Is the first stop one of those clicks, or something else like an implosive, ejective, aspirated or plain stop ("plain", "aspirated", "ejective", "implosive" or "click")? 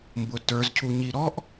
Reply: plain